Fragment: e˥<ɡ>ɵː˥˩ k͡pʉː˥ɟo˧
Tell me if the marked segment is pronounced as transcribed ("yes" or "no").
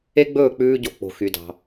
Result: no